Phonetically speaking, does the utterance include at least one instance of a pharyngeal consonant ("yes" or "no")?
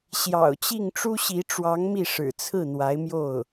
no